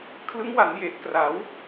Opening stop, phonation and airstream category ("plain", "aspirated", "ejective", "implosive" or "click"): aspirated